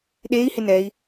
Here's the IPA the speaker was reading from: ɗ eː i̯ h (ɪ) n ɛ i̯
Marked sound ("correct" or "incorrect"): correct